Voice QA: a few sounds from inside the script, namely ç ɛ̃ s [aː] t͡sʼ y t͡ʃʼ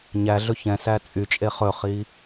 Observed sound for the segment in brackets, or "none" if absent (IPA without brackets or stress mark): æː